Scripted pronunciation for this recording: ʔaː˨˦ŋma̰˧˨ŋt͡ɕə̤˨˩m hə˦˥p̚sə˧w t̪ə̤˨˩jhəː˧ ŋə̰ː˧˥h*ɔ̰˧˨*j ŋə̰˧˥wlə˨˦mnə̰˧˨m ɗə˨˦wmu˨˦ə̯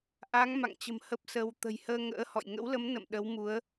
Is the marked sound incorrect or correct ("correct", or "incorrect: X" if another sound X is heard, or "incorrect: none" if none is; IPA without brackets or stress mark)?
correct